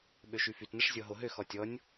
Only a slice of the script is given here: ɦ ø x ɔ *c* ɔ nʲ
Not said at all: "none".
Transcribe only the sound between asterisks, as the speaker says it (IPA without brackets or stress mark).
tʲ